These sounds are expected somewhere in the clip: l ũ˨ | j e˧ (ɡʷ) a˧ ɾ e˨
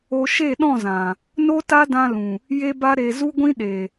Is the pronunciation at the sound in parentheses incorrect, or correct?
incorrect